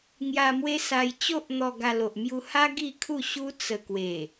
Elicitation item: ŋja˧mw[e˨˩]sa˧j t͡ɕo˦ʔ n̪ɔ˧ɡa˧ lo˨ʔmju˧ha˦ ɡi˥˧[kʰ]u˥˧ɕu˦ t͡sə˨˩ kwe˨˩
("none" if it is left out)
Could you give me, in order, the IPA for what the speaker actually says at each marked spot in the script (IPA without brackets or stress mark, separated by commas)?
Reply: e˦, kʰ